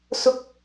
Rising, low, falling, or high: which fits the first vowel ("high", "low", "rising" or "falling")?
high